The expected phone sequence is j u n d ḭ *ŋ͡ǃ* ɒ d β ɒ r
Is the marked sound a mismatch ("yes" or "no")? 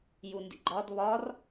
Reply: yes